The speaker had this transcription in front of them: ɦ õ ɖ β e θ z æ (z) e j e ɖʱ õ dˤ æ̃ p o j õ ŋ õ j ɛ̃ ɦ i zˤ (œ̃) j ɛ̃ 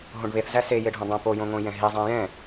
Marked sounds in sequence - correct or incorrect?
incorrect: s, incorrect: æ̃

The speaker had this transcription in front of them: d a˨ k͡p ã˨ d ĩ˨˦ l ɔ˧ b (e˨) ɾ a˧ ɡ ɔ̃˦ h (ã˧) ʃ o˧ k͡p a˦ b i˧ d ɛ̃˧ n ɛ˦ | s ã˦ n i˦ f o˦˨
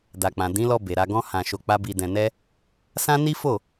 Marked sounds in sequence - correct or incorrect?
correct, correct

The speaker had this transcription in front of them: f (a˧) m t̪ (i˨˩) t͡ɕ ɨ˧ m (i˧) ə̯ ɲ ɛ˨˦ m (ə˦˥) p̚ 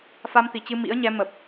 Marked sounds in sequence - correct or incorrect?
correct, correct, incorrect: ḭ˧˥, incorrect: ə˨˩

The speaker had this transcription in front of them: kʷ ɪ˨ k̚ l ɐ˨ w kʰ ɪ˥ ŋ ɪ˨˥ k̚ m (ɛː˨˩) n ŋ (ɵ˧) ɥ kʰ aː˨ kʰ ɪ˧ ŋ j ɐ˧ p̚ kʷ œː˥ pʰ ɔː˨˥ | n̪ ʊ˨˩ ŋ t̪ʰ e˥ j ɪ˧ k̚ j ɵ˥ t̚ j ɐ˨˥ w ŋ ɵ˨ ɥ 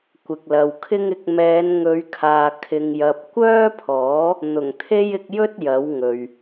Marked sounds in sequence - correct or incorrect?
incorrect: ɛː˨˧, incorrect: ɵ˨˧

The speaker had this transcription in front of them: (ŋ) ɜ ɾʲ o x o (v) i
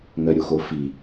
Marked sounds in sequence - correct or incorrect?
correct, incorrect: f

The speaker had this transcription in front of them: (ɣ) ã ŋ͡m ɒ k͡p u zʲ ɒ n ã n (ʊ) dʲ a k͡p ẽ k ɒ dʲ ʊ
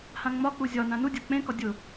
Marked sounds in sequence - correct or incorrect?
incorrect: h, incorrect: u

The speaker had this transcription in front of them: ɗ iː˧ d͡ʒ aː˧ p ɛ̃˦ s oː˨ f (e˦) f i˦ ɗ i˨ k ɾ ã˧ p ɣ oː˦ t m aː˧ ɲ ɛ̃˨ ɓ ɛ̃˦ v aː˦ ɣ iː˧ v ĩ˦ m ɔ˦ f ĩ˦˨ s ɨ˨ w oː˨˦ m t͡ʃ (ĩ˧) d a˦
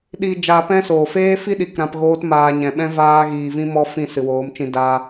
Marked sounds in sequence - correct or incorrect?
incorrect: eː˦, correct

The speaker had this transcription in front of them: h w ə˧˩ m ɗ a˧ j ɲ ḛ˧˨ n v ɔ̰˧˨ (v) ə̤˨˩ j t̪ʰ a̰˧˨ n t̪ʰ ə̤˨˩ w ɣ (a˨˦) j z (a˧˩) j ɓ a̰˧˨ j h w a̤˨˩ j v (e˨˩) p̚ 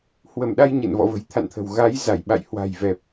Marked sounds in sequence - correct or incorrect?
correct, correct, correct, incorrect: ɛ˨˩

